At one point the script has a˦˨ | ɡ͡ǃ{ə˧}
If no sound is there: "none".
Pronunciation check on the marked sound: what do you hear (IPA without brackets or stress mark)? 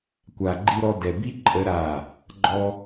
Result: ɔ˧